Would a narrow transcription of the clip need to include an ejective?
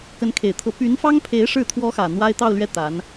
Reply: no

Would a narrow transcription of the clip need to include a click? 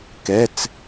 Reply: no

